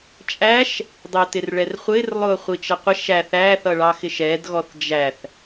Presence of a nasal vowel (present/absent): absent